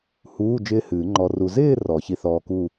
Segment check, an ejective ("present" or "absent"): absent